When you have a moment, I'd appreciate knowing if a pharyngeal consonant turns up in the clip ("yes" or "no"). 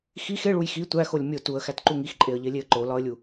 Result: no